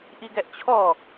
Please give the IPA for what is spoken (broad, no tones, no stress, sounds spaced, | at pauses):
ʔ i ɡ ɛ ʔ t͡ɕʰ ɔ